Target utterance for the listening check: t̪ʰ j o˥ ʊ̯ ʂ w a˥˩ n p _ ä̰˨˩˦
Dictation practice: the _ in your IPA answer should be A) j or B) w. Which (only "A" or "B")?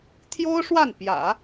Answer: A